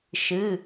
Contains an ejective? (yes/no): no